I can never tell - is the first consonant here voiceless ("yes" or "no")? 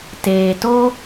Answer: yes